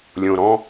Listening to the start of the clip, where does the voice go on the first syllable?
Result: low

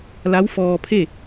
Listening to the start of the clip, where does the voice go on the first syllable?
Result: rising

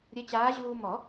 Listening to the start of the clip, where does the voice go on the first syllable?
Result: rising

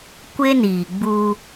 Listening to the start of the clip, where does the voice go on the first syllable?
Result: high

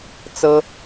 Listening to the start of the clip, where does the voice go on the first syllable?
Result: high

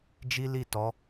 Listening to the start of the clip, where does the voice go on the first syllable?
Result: high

